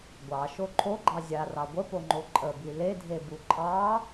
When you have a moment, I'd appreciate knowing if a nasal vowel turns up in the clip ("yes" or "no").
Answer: no